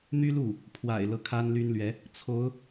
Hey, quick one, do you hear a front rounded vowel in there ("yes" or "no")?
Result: yes